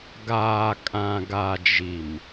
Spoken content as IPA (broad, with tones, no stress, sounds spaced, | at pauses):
ɡ aː˨ kʼ ã˨ ɡ a˨ d͡ʒ i˨ m